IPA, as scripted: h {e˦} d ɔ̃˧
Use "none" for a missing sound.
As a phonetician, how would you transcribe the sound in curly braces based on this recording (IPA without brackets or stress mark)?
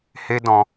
e˦